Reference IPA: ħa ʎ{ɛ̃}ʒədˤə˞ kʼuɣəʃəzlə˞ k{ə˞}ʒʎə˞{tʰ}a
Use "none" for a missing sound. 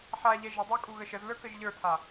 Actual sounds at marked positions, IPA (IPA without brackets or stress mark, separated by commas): ɛ, ə, tʰ